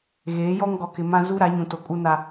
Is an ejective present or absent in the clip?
present